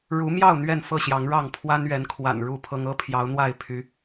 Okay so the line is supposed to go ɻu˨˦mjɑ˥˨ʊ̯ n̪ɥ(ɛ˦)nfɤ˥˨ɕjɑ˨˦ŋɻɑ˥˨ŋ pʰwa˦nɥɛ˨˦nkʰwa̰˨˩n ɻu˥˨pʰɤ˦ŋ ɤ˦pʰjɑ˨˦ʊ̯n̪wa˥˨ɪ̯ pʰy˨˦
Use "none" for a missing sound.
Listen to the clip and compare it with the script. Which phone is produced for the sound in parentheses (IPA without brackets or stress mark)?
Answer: ɛ˥˨